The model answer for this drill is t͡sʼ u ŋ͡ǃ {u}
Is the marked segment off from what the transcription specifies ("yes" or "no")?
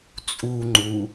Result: no